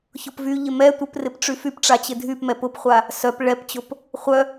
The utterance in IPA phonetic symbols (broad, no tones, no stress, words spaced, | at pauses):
çʊpvyʎɪ mɛ tʷɪprɪp ʈ͡ʂyfypʈ͡ʂa t͡ɕɪdʱypmɛp ʊpχʷa | sœp ɭɛpt͡ɕʊp | χʷœ